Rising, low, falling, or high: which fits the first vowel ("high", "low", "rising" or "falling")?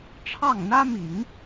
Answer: falling